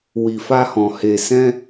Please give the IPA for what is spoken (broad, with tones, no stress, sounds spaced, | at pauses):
w i˨ f a˧ h ɔ̃˨ h e˨ s ɛ̃˧